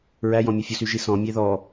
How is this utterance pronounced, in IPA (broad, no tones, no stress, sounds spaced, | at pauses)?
ɹ æ j ɔ̃ mʲ ɵ fʲ u s y ʒ i s ɔ̃ mʲ e ð ɔ